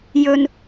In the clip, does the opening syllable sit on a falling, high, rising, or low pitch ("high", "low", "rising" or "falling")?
low